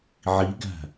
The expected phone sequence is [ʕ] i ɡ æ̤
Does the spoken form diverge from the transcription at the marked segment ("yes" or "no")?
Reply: no